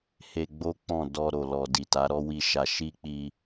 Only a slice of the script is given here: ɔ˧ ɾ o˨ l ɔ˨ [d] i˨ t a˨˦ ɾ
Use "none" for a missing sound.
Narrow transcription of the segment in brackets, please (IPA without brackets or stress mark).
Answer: d